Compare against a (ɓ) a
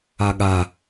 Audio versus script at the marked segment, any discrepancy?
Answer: yes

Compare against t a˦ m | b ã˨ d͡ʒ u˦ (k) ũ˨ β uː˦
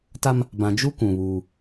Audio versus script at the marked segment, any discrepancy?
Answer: no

